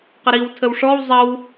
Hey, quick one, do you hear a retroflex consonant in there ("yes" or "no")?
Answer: yes